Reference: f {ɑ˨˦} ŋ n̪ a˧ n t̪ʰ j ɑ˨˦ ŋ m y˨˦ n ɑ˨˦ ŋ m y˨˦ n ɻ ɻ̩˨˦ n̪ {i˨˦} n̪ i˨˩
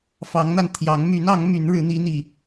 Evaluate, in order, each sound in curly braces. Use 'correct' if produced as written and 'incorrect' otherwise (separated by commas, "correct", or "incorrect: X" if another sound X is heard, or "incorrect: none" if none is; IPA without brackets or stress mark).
correct, correct